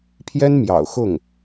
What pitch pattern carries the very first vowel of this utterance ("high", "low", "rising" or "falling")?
high